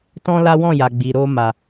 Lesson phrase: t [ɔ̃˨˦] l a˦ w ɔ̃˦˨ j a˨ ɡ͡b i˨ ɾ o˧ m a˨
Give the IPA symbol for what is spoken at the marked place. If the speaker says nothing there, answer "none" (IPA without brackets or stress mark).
ɔ̃˦